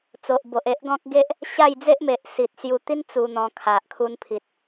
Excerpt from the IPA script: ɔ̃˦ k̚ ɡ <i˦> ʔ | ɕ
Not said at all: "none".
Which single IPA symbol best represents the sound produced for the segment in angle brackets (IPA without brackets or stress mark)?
e˦